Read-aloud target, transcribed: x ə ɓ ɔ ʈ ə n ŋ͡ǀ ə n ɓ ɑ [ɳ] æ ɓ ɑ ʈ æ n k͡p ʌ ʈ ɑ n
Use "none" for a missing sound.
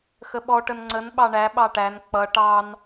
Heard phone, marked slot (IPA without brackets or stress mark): ɳ